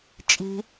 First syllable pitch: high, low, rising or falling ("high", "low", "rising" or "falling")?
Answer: low